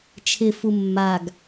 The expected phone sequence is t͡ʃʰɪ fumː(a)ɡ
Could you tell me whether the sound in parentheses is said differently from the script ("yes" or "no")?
no